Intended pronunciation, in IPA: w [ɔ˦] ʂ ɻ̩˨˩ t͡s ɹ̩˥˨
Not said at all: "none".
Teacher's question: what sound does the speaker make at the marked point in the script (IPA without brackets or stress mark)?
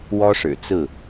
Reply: ɔ˦